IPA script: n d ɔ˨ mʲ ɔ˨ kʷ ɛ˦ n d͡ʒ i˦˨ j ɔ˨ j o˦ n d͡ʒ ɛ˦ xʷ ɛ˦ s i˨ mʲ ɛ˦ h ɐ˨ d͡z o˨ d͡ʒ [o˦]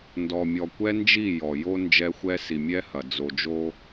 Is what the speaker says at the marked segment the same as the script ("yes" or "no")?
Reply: yes